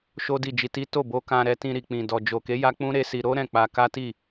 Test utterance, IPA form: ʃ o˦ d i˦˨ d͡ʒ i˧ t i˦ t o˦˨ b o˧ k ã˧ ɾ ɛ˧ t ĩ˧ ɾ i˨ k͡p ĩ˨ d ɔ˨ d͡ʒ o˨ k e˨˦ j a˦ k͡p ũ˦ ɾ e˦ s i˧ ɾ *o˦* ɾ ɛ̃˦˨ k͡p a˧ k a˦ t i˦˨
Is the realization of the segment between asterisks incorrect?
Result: no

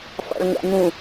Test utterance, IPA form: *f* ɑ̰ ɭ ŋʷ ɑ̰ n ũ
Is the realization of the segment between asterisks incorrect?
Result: no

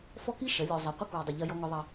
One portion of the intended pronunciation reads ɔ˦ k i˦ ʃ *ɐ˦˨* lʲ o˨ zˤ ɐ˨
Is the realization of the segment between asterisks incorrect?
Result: yes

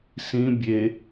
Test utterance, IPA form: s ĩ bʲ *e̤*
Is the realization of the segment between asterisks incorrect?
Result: yes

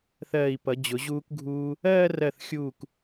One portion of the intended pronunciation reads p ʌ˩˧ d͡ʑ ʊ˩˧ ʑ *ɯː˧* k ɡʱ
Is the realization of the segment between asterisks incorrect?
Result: yes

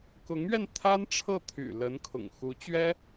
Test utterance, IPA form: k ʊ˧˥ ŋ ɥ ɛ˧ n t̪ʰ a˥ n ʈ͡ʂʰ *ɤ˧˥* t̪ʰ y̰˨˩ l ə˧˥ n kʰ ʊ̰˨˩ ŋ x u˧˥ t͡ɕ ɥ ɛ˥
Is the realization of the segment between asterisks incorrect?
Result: yes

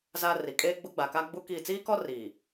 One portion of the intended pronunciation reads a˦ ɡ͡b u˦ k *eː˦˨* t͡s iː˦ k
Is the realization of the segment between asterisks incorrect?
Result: yes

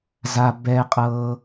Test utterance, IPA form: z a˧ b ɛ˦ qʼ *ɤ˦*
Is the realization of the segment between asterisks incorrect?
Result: no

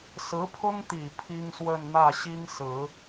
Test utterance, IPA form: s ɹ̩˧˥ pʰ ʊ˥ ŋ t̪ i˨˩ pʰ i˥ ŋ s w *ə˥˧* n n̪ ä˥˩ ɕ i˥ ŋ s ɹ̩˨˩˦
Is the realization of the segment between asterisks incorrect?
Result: no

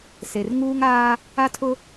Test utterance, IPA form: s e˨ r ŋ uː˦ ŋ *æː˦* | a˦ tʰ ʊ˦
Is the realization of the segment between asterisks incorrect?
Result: yes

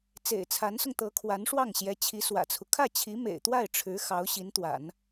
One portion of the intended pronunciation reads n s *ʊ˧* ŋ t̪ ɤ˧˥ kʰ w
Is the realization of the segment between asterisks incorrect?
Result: no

